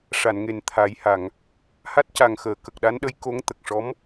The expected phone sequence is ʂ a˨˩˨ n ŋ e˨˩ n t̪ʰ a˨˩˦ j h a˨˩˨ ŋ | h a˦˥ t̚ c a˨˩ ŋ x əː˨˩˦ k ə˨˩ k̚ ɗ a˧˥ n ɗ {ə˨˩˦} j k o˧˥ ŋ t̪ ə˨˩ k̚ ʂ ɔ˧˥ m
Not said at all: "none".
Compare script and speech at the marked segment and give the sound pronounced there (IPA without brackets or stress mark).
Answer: ə˧˥